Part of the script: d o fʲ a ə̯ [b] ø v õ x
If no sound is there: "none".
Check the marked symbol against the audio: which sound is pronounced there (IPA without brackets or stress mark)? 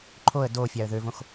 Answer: ð